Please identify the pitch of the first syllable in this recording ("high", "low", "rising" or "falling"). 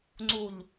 low